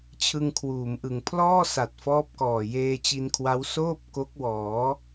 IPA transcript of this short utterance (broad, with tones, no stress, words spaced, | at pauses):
t͡ɕʰɯ˧ŋkʰwuː˩˦mʔɯ˨˩ŋ pʰlɔː˥˩sa˨˩t̚ fɔː˦˥p̚kɔː˨˩ jeː˧t͡ɕi˧nkʰwa˦˥w soː˥˩p̚ ko˦˥k̚wɔː˩˦